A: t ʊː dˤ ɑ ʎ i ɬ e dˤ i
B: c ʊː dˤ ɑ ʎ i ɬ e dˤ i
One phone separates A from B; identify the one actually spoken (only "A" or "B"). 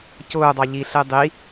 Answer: B